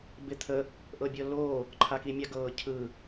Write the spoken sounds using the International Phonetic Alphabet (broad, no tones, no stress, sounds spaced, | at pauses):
b ɪ t̪ʰ ə | ʔ ɤ bʲ ɤ l o | ǃʰ a k i mʲ a ɡ ɤː cʰ ɯ